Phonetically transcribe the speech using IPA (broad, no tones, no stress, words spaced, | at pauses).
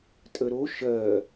tʼəɾo ʃɜ